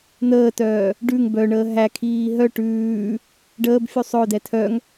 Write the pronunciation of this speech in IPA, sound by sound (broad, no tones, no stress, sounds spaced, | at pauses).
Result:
n̪ əː t œː | ɖ ʉ ŋ b œ ɳ əː ɦ æ kʰ iː ɦ œ ʈ ʉː | ɖ əː b fʲ u sˤ œ d ɛ tʰ œ ŋ